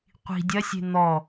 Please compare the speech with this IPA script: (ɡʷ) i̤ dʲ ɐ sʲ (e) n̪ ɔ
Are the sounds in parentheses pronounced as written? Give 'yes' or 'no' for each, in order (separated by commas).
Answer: no, no